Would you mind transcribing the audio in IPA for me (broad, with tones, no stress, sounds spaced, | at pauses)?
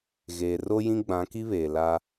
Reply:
ɣ eː˨ r o˦ j ĩ˦ ɡ͡b ã˨˦ k i˦ β eː˨ l a˦